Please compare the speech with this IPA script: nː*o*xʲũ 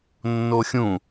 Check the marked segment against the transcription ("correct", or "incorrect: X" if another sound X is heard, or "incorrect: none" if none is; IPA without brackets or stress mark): correct